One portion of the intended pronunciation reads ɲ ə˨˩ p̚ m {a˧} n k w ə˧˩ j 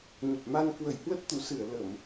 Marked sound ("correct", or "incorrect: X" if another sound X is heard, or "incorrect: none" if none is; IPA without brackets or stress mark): correct